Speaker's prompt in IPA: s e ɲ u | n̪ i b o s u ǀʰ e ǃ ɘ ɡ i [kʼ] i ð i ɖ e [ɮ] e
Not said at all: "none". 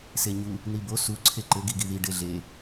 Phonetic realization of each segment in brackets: ɡ, ɮ

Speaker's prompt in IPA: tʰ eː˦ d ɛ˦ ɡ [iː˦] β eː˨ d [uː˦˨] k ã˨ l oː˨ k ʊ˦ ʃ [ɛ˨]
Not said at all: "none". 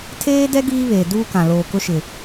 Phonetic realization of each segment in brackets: iː˦, uː˦, ɪ˨

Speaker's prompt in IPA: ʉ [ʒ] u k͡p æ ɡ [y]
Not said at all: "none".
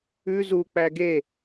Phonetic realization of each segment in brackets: z, e

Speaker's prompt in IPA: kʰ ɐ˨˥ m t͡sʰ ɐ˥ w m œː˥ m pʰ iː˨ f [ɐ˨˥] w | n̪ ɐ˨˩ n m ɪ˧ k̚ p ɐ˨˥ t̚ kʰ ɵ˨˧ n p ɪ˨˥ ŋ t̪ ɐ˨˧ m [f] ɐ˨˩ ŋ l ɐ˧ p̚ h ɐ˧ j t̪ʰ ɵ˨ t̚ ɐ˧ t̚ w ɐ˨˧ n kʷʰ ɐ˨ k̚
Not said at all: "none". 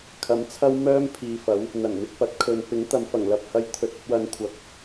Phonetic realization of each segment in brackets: ɐ˨˥, f

